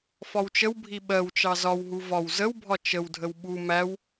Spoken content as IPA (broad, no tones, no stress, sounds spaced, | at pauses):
f ɒ w t͡ʃ ə w bʱ i ɓ ɜ w t͡ʃ ɑ z ɒ w ɦ u v ɒ w z ə w bʱ ɒ t͡ʃ ə w dʱ ə w ɓ u m æ w